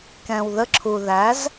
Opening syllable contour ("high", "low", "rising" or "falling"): low